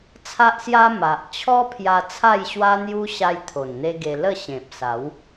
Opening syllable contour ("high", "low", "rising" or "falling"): high